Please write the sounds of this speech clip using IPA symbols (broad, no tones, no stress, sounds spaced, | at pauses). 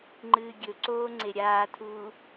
ŋ͡ǃ ɨː ɡʲ ɵ ǀ oː ŋ͡ǀ e ɾʲ aː tʰ uː